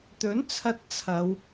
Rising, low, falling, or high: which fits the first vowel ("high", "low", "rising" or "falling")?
rising